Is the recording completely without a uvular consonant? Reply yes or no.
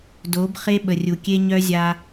no